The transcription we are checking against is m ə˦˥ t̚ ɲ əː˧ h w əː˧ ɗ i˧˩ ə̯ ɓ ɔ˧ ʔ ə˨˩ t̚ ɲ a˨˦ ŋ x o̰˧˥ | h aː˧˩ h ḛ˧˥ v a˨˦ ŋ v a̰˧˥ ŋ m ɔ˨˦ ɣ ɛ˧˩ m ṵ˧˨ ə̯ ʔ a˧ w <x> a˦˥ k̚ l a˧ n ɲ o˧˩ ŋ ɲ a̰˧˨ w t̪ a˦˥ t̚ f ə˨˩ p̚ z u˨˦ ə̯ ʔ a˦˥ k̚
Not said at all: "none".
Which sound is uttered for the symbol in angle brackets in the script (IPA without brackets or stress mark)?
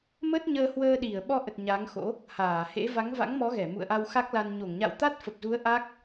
x